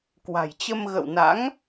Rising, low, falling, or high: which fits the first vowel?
low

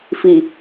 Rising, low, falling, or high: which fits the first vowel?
low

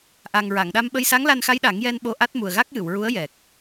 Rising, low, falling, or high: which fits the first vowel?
low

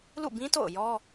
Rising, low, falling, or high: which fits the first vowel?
falling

